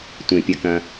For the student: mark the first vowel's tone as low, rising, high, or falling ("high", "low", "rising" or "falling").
low